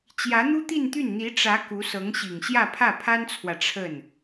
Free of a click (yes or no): yes